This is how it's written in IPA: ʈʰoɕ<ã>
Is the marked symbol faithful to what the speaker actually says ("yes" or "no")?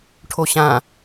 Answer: yes